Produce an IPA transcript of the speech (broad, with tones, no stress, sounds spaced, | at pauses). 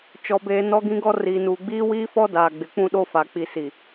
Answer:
t͡ʃ ɔ˦ b eː˦ n ɔ˦ ɡ ĩ˦ ɡ ɔ˦ r iː˨ n uː˨ ɡ͡b iː˦ w iː˦ f ɔ˦ d aː˨ ɡ͡b ɪ˨˦ k͡p ũ˦ ɗ o˦ f a˨ k͡p i˨ s i˨